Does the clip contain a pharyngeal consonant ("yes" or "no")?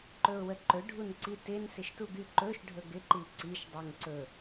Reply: no